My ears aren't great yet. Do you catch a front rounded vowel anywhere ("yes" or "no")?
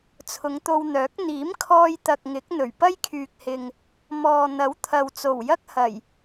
yes